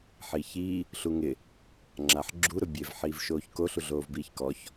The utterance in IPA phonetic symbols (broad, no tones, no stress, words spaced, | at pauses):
ħiːçiː | ɬuŋɪ | ŋ͡ǁaħɡ͡ǁu ɾʊbʲev ħiːvʃoːçko ɬuɮoːvbiːçkɔç